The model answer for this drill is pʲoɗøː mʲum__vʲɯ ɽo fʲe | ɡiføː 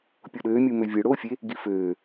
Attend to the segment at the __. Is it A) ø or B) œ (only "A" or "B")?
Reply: A